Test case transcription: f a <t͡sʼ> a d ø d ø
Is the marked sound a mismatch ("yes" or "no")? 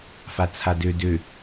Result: yes